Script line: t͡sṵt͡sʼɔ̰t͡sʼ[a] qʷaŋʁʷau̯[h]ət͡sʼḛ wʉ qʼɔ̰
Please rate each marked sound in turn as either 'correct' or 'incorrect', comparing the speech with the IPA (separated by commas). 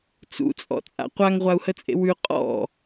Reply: incorrect, correct